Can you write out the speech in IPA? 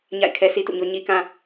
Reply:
ɲ a̰˦˨ ɪ̯ kʰ ɛ˦ sʰ i˦ t ṵ˦˨ ɲ o˦ ɲ i˦ k ã˦

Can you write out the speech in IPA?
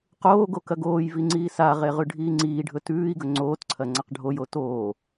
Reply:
q oː ɡ o k ɐ ɡ oː j v i ŋ͡ǀ iː s a ʁ e ʁ ʉ ɖʱ iː ŋ͡ǀ iː ɖʱ ɵ t ʉː i̯ ɡ ɵ ŋ͡ǀ oː t ǀʰ ɐ ŋ͡ǀ a q ɖʱ o j o t oː

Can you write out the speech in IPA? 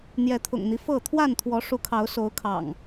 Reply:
n̪ j ɛ˨˦ t̪ʰ ʊ̰˨˩ ŋ n̪ i˦ f ɤ˥˨ t̪ʰ w a˥˨ n t̪ʰ w ɔ˨˦ ʂ u˨˦ kʰ ɑ˨˦ ʊ̯ s o˨˦ ʊ̯ kʰ ɑ̰˨˩ ŋ

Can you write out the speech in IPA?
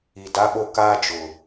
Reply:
i˨ d a˦ ɓ o˦ k aː˦ d͡ʒ ʊ˨

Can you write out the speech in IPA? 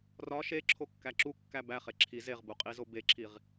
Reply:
r ɒ ʃ e ǁʰ o kː æ ǁ u kː æ b æ χ e ǁʰ i z e ʁ b u qʼ i z o b e ǁʰ i ʁ

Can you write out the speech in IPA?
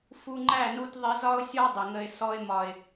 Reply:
f u˧ ŋ͡ǃ æ˦˨ n u˧ t ðˤ ɪ˧ z ɒ˦ ʊ̯ sʲ ɔ˦ dˤ ɪ˨ ŋ ə˧ ɪ̯ s ɔ˧ ɪ̯ m ɒ˨ ɪ̯

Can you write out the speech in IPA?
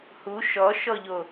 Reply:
h u ʃ ɔ ʃ ɔ ʎ o

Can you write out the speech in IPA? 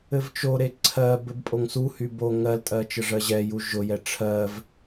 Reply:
ɘ v t͡ʃ o ɾ e ǀʰ ɜ b ɘ b pʼ o ŋ s u h y b o ŋ ɜ l tʼ ɜ t͡ʃ ə ʐ ɜ ʑ ɛ j u ʒ ʊ j ɛ ʈ͡ʂʰ ɜ v

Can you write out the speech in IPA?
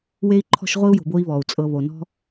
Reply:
w e˥ i̯ ǃʰ ɔ̤˥ ʃ ʁʷ i˥ u̯ j o̤˨ b o˦ i̯ β ɔ˩ u̯ t͡sʼ ɤ˨ β o˩ n ɔ̤˥

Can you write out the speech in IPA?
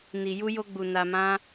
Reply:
n i˨ j u˧ j o˧ ɡ͡b u˨ n a˧ m ã˦

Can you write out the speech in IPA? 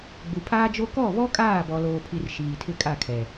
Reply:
ɡ͡b u˨ pʰ aː˦ d͡ʒ o˦ k ɔ˦˨ β ɔ˦ kʼ aː˦˨ b ɔ˨ l oː˨ pʰ i˨ r ʃ iː˨ tʰ ɪ˦ kʼ a˦˨ kʰ ɛ˨

